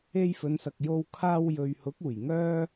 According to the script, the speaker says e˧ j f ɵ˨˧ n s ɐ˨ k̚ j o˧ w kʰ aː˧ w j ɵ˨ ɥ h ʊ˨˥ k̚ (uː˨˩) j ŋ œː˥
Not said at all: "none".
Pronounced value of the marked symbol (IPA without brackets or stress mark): uː˨˩